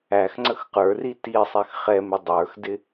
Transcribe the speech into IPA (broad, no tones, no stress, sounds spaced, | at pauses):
æ x ŋ͡ǀ ə x q ə˞ r i t i sˤ ɛ x χ ɛ m ɪ dˤ ə˞ x d ɪ